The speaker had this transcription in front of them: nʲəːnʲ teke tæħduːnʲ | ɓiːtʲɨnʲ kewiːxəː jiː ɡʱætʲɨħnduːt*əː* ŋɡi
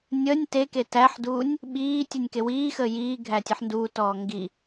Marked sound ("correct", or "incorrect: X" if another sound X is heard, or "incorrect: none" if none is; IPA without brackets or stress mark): incorrect: ɔː